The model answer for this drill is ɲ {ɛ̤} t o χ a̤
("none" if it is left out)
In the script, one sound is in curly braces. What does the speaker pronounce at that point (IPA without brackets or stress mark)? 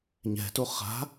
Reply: ɛ̤